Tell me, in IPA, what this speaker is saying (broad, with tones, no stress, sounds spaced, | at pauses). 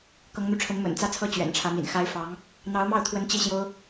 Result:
k ɤ˧˥ ŋ n̪ u˧ ʈ͡ʂʰ ə˧˥ n m ə̰˨˩ n t͡s ä˥˧ t͡sʰ ɤ˥˩ t͡ɕ ɥ ɛ̰˨˩ n ʈ͡ʂʰ ä˧˥ m ḭ˨˩ n x a˥ ɪ̯ f ɑ˧˥ ŋ | n̪ ɑ˧˥ ʊ̯ m ɑ˥˩ ʊ̯ t̪ʰ w ə˧˥ n t͡ɕ i˥˩ ɕ j o˥ ʊ̯